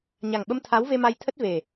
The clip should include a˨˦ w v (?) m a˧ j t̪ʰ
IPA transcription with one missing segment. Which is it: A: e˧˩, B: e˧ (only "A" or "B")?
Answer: B